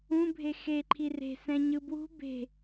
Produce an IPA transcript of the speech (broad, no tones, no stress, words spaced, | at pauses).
ũbʱe xeǃʰi re̤sɛ̃ ɲɯbwṳ be̤